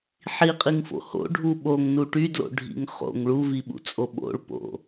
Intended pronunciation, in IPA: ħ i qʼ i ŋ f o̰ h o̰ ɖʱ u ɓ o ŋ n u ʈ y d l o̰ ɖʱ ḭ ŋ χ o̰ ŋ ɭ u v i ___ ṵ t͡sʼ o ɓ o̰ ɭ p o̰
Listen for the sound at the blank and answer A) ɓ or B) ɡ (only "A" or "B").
A